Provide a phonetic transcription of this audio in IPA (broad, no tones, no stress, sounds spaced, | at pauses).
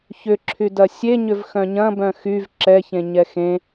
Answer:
ç ʏ ǁʰ y d ɐ sʲ e ɲ ʏ v x œ̃ ɲ ɐ̃ b œ̃ x y v ǁ ɛ ç ẽ ɲ ɛ x ẽ